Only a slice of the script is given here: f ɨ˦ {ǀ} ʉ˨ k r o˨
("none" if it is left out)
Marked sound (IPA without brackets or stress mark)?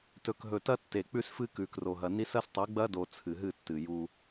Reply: k